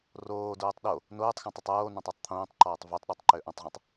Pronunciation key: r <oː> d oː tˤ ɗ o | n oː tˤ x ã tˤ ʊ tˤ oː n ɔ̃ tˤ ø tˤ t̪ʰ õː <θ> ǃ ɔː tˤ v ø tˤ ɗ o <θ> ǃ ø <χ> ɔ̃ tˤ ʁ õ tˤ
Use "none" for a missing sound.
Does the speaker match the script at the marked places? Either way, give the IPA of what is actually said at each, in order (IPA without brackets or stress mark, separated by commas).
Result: oː, tˤ, tˤ, ʔ